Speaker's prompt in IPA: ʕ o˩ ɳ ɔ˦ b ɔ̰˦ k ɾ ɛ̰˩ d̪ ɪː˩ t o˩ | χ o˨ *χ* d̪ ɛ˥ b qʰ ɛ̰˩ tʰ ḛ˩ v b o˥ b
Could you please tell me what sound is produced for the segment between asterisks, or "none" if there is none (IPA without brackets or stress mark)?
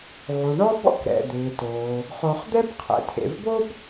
χ